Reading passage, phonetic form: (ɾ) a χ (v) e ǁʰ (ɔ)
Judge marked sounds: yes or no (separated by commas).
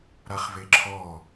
yes, yes, yes